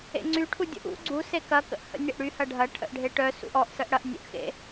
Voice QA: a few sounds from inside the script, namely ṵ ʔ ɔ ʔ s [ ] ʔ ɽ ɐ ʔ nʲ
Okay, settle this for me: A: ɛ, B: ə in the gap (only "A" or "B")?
B